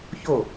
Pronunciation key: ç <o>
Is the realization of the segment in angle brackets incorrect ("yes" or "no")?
no